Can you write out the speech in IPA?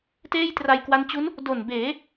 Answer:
t eː˥˩ j t r a˧ j k w a˦˥ n t͡ɕ u˦˥ n | d o˨˩ n b eː˩˦

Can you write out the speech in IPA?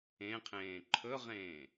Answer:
ẽ qʰ ẽː ǃʰ ɵ ʁ ẽː

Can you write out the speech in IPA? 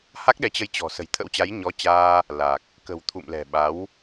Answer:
h a˦˥ k̚ ɗ ɛ˨˦ t͡ɕ ə˧ j t͡ɕ ɔ̤˨˩ s ə̤˨˩ j t̪ʰ ə̰˧˥ w t͡ɕ a˨˦ j ɲ ɔ˨˦ t͡ɕ aː˧ | l a˨˩ k̚ | k ə̤˨˩ w t̪ʰ ṵ˧˨ m l ɛ̤˨˩ ɓ a˨˦ w

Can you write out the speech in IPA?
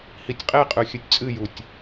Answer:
h i tʲ qʼ e qʼ ʉ xʲ ɨ tʲ t͡sʼ ɨ j u tʲ

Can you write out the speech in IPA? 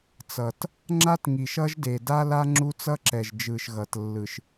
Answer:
t͡s ʌ˨ t | ŋ͡ǁ a˦ t ŋ i˨ ʃ ʌ˦ ʒ d e˨ d a˦ l a˦ ŋ͡ǁ u˦ t͡s ʌ˦ ǁ ɛ˨ ʒ d͡ʒ ɯ˨ ʃ ɣ ʌ˨ t lː ɯ˨ ʃ

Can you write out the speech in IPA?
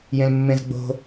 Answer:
j ẽ l mː ẽ z ɡ͡b o̤

